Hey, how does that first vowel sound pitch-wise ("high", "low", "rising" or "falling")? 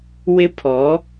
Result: high